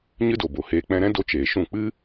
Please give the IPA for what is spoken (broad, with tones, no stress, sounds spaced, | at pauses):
ɲ ɨ˦ d o˨ b o˨ h eː˧ k͡p ɛ̃˧ ɾ ɛ̃˦ d o˧ t͡ʃ eː˨ ʃ ũ˦˨ k͡p ɨ˦